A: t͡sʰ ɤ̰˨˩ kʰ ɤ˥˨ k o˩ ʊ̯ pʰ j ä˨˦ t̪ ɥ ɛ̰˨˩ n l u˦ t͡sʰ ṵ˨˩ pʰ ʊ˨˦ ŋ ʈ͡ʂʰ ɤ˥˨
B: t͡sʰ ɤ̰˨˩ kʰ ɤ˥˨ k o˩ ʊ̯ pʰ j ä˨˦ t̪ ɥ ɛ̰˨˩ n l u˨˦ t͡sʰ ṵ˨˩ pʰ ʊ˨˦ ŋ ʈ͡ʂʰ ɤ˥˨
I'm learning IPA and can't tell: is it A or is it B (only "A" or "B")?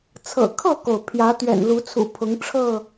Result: B